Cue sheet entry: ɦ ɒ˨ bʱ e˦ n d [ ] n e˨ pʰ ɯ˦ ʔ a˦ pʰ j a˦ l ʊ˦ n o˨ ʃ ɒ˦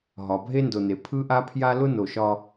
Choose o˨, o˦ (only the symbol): o˨